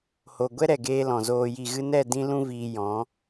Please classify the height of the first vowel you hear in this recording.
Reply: mid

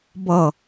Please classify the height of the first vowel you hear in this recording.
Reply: mid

